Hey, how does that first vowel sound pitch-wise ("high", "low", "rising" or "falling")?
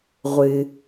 low